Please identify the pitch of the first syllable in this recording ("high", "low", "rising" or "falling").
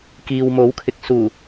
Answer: low